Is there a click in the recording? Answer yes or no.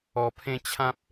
no